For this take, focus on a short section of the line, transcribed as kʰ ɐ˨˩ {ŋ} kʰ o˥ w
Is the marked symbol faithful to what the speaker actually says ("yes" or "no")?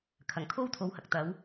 yes